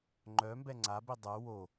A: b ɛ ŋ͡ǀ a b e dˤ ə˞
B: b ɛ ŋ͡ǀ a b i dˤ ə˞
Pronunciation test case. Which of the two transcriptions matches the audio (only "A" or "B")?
B